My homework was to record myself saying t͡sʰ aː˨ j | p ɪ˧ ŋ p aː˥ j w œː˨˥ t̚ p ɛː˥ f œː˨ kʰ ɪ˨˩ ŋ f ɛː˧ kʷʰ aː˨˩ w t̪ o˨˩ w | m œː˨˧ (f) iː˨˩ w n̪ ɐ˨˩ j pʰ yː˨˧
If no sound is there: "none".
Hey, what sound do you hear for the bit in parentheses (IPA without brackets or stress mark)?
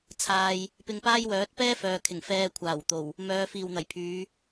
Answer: f